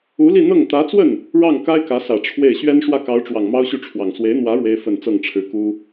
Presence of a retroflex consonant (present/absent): present